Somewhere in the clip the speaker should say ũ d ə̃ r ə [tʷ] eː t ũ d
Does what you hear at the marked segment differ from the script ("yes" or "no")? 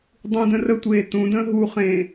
no